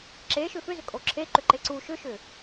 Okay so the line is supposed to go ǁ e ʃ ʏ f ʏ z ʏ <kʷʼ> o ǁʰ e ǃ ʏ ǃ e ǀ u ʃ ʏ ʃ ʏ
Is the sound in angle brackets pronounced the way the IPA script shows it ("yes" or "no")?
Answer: no